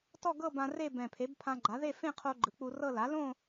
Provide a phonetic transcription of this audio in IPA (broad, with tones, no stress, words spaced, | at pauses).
tɔ˥˧ɡɤ˥˧bã˧ re˥˧ bɛ̃˨˩pʰe˩˥b pʰã˧ɡ͡ǃa˩˥ðe˥˧ fẽ˥˧qʰo˧ ɡ͡ǃɯ˩˥k͡pu˧rɤ˥˧ la˩˥lõ˥˧